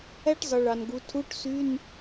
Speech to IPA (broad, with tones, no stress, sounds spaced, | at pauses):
æ˥ ʈ zˤ ɯ˩ ɭ ɑ˩ n ɡ u˩˧ tʰ u˧˥˧ ʈ s y˧˥˧ n